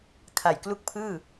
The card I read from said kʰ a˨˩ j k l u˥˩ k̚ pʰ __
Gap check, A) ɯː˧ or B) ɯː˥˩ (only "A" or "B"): B